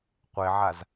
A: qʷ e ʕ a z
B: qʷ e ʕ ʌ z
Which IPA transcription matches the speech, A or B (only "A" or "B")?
A